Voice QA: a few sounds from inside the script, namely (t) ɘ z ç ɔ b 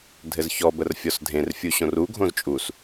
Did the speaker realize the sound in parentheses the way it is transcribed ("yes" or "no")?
no